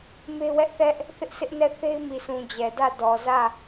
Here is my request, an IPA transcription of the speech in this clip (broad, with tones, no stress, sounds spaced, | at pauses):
m e˦ w ɛ˦ ʔ θ ɛ˦ ʔ | θ ɪ˦ ʔ sʰ ɪ˦ ʔ n ɛ˦˨ θ e˦ ɪ̯ m i˨ s ũ˨ d͡ʑ ɛ˨ d ä˦˨ d ɔ˨ z ä˦˨